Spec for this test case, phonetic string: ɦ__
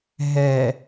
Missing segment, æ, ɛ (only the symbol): ɛ